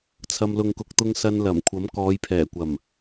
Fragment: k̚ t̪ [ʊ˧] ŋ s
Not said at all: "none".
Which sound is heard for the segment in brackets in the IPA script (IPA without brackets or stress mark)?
ʊ˧